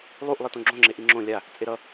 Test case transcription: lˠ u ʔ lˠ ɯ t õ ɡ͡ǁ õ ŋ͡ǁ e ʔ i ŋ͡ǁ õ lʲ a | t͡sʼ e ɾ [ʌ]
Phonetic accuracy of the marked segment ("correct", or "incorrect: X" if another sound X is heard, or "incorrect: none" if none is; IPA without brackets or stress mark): correct